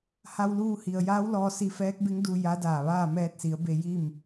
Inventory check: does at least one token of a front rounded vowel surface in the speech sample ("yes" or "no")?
no